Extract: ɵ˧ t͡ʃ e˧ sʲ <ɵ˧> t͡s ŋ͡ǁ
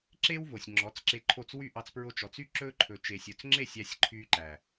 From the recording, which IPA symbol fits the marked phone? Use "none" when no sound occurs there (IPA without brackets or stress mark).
ɵ˧